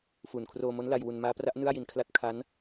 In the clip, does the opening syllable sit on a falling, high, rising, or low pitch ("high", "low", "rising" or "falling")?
low